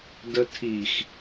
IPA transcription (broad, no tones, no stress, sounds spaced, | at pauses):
d ə tʰ i x